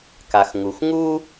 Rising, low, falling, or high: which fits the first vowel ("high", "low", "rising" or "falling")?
low